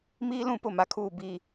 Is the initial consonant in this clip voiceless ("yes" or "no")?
no